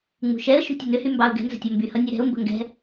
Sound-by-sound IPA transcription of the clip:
ŋ͡m ṳ ʃ ɛ ə̯ ʃ ṳ tʲ ə n ʏ h y m b ɑ ʊ̯ ɡ ɛ̤ n z ə̤ tʲ ʌ m b y h ʌ nʲ ɛ ɾ ɛ̤ ʊ̯ m b ə̤ ŋ ɡ ɛ̤

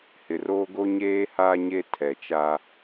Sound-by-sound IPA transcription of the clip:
h ɪ˨ r oː˦ ɡ o˦ ɲ eː˦ h aː˦ ɲ e˦ tʰ ɛ˨ t͡ʃ a˦

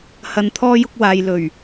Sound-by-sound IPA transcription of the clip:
h ɐ˨ n t̪ʰ ɔː˧ j ʊ˧ k̚ w aː˨ j l ɵ˨˩ ɥ

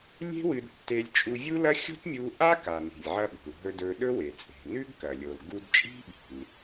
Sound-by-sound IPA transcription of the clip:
lʲ e̤˥ w ɨ˧ d tː e˧ lʲ t͡ʃʼ u˧ vʲ u˥ l ɐ˥ xʲ o̤˥ t mʲ u˧ ʔ a˥ k a˩ n i̤˩ lʲ ʕ ɐ˧ ɓ o̤˩ l ɦ ɵ˧ d ɵ˧ ɗ ɵ˥ w e˩ t͡sʼ e̤˩ n ʉ˥ ɡ k ɐ˩ lʲ o˩ l ɡ u˧ d t͡ʃʼ i̤˥ ɓ i̤˩ l

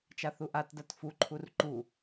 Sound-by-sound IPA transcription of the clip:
t͡ʃ a θ u ʔ a t d a t f u ǃʰ u r ǃ u

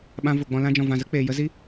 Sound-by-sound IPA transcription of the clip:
ɓ ã˧ v o˨ ɡ͡b ɔ̃˧ l ã˧ d͡ʒ ɔ̃˨ v ã˨ z ə˦ k͡p eː˨ j ə˦ z i˦

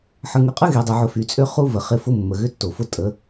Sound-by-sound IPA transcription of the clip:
ħ ə˨ ŋ ʏ˨ qʼ ə˦ ɣ e˨ dˤ ø˨ ʕ ʊ˨ f y˨ t͡sʼ ø˦ χ u˦ v ə˨ χ ɪ˦ f ʊ˦ mː ə˨ ɣ ʏ˦ tː o˨ f ʊ˦ tʼ ə˨˦

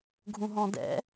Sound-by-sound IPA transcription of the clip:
ɡʱ ũ ɦ ɔ̃ d ɛ̰

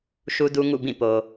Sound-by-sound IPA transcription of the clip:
ʃ u˦ d u˦ ŋ ṵ˦˨ b ĩ˦˨ p o˨

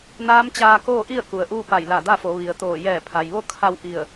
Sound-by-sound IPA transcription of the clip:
n aː˧˥ m t͡ɕ aː˧ k oː˥˨ ʔ i˥˨ ə̯ k u˩ ə̯ ʔ uː˥˨ p a˧˩ j l a˧˩ d a˥˨ f o˩˧ ʋ i˩ ə̯ t̪ oː˧˩ j ɛː˧˩ pʰ a˩ j ʋ o˥˨ kʰ a˧ w ʔ i˧˩ ə̯

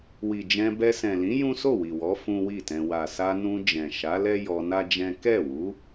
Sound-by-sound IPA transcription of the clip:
w i˨ d͡ʒ ɛ̃˧ b ɛ˧ s ɛ̃˨ l ĩ˨˦ j ũ˦ s o˦˨ w i˨ w ɔ˨˦ f ũ˦ w i˦˨ t ɛ̃˧ w a˨ s a˧ n ũ˧ d͡ʒ ɛ̃˨ ʃ a˨˦ l ɛ˦ j ɔ˧ n a˦ d͡ʒ ɛ̃˦ k ɛ˦˨ w u˨˦

